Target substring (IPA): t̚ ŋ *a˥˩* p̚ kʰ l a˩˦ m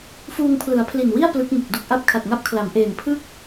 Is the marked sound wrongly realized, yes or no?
yes